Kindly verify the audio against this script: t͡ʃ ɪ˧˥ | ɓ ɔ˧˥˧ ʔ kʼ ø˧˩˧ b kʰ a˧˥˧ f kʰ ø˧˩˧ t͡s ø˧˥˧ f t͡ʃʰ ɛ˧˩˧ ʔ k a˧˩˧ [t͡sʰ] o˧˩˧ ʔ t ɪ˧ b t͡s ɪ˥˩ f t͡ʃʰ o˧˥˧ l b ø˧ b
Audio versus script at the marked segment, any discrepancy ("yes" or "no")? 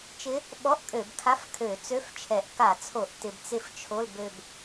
no